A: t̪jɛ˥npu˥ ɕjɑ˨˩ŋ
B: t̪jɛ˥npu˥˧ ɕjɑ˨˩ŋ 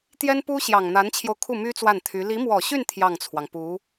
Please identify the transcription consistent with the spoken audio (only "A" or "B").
A